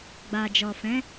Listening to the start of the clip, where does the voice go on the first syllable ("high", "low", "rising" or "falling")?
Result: low